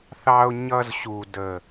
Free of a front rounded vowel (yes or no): yes